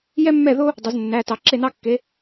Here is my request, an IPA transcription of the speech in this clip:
j ɛ˥ mː ɛ˥˨ ð o˥ | dˤ o˩˧ z nː æ˩˧˩ t ɑ˩˧ ǁ e˥˨ n ɑ˥ kː e˨˥

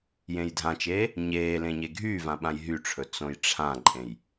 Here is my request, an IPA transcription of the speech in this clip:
j ẽ j dʱ ã t͡ʃ eː | ɲ eː l ẽ ɲ e ɡʱ yː v ã ɓ ã j ɦ y ʈ͡ʂʰ ɵ t͡s õ j ʈ͡ʂʰ ã ǃʼ ẽ j

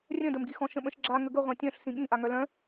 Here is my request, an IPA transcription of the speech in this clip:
rʲ œ̃ d ə m ɡ i x ɔ̃ ʃ ə̃ ɓ ə̃ ʃ ɡ͡ǁ a ŋ ə ɡ ə ʁʷ ã tʲ œ̃ ɬ s ĩ ɠ ĩ ʔ a ŋ œ l œ̃

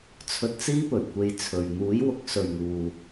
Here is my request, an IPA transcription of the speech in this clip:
t͡sʰ ɵ˧ t̚ t͡s iː˥ p ɵ˨˩ ɥ kʷ e˧ j t͡sʰ ɵ˨ ɥ n̪ uː˨˥ j w ʊ˨˥ k̚ s ɵ˨ ɥ ŋ uː˨

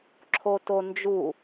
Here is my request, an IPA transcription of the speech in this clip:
ǁʰ o t o n d͡ʒ u

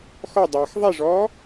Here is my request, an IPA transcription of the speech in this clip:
x ɔ dˤ aː x ðˤ e ʐ ɔː

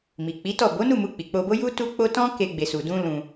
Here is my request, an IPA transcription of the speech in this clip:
m i˨ k͡p i˨˦ t ɔ˦˨ b o˨˦ n u˦˨ m u˧ k͡p i˨ k͡p o˧ b o˦ j u˦ t u˦ k͡p o˦ t ɔ̃˦ k e˧ ɡ͡b e˨ s u˨ d ũ˧ l ũ˧

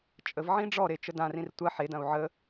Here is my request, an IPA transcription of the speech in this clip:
t͡ʃʼ ə v ʕ ĩ ɖ͡ʐ ɔ ɾ e t͡ʃ ə d ã r ĩ r tʷ ɐ ħ e d ɐ̃ u̯ ʕ ə

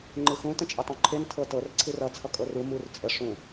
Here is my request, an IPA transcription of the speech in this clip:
ŋ͡ǃ ɨ x ũ t ə̃ t͡ʃʼ ɘ tˤ ũ ǃʰ e n tʰ ɤ t ɤ r ǀʰ ɨ r ʌ t͡sʰ ʌ kʼ ɤ r u m u r t͡sʼ ə ʂ ũ

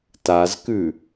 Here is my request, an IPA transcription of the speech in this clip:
t a z k ʉ

